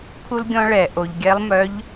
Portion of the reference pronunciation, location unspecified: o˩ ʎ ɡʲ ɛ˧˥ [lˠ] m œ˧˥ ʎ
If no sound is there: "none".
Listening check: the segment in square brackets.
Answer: lˠ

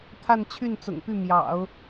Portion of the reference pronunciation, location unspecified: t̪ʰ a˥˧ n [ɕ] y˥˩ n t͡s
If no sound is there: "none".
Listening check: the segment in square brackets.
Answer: t͡ɕʰ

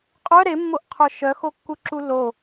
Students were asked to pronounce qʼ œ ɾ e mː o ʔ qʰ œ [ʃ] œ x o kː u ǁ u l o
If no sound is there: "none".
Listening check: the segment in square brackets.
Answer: ʃ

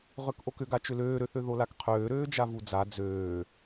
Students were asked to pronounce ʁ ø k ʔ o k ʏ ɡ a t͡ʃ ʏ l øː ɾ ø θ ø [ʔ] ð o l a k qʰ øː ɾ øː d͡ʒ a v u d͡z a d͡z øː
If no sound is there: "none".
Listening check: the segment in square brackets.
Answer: none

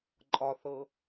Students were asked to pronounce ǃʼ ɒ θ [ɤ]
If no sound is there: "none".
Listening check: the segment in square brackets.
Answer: ɤ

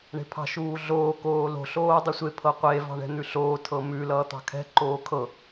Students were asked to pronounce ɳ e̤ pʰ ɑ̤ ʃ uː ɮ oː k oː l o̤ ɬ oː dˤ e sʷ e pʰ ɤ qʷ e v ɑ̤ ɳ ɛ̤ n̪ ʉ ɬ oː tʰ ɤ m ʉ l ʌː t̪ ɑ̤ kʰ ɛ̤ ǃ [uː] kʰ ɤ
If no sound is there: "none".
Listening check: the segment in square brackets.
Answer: oː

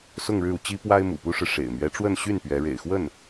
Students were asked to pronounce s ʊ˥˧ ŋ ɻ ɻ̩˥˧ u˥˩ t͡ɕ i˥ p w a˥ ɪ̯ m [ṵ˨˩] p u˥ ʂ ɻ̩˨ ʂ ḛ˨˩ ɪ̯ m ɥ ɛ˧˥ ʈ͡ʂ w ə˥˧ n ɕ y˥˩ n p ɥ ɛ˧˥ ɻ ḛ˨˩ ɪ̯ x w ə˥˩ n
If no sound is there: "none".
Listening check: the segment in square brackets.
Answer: ṵ˨˩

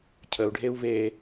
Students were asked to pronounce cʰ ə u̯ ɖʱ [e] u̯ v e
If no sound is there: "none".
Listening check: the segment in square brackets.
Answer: e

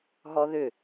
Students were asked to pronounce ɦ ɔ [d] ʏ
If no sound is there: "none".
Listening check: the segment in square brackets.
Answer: ð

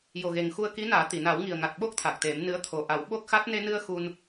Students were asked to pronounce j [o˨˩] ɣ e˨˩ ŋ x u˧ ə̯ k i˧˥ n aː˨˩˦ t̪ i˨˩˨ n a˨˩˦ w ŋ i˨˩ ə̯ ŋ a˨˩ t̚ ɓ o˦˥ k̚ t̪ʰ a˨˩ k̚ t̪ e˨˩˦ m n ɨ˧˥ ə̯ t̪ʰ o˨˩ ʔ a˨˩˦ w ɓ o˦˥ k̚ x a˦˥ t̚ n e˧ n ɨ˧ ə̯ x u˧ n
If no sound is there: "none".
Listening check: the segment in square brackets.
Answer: o˨˩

